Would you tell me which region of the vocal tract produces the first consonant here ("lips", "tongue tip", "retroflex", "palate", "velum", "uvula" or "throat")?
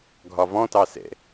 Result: velum